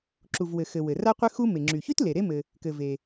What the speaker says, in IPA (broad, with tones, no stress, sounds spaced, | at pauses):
ǁ u˩ v w ɘ˩ x ɘ˩ w ɘ˩ r a˦ qʷ ɘ˦ x u˦ m e˩ ŋ͡ǁ y˩ ç y˥ t l e˩ ɾ e˦ m ɘ˨ | k ɘ˩ v e˩